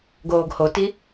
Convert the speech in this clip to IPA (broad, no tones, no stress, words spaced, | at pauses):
ɡoːɡhoti